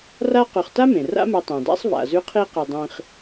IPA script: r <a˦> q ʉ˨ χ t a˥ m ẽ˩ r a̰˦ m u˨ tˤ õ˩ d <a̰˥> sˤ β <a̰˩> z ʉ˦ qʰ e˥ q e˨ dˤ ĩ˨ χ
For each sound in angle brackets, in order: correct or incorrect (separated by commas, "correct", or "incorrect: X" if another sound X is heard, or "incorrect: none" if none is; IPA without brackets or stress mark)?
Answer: correct, correct, correct